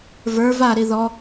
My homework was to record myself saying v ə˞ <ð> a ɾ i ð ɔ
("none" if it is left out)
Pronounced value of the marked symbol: v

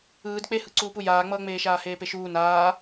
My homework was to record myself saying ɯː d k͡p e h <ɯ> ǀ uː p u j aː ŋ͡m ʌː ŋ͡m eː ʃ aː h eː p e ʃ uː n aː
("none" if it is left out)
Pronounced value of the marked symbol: ɯ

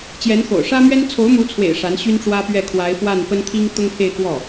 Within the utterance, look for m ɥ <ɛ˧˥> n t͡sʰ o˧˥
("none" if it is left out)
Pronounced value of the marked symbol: ɛ˥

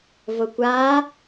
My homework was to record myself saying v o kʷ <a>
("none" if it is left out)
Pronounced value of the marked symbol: a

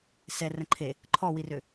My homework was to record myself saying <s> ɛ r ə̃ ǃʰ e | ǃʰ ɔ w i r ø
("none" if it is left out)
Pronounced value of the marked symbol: s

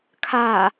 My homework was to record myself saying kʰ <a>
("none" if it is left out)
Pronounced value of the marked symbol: a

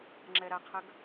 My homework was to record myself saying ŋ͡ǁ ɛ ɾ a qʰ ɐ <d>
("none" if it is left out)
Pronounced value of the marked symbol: ɡ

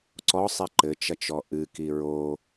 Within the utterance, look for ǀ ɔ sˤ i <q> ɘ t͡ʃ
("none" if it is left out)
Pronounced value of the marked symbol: ǃ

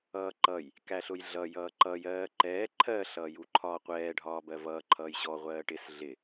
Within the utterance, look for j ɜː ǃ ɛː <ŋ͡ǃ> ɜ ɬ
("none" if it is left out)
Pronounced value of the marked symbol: ǃʰ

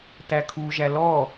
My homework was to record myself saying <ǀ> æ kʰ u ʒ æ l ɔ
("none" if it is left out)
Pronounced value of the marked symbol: t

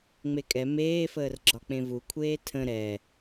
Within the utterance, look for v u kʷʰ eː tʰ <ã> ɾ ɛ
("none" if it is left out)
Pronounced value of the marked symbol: ə̃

